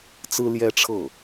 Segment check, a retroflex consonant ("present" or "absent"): present